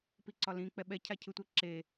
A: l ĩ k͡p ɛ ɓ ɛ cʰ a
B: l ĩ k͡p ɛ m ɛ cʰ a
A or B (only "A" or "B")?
A